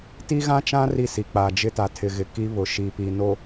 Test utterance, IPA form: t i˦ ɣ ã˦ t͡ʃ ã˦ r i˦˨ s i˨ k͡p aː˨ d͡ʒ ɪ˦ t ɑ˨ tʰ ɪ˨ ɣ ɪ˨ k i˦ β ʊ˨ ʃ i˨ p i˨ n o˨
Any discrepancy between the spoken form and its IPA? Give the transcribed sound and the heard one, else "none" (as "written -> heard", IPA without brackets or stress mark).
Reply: ɑ˨ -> a˨